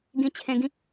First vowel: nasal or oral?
nasal